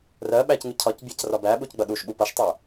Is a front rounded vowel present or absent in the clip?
absent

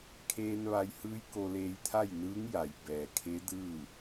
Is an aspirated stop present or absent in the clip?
present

